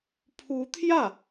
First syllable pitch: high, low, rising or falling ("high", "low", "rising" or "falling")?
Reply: rising